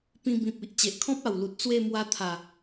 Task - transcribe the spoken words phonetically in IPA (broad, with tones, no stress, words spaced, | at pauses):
pĩ˧bĩ˨p̚i˨ʔ t͡ɕe˨ʔkʰɔ̃˦p̚a˨˩wlu˨t̚ t͡swe˥˧mwa˧ t̪ʰa˨˩